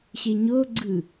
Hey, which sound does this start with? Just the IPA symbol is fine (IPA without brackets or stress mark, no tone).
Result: ɕ